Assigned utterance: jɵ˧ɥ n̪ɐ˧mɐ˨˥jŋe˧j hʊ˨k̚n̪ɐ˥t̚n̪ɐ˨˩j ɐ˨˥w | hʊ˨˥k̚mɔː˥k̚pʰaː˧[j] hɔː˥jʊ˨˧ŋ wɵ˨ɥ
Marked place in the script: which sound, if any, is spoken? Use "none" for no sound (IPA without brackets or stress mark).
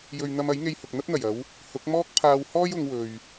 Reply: w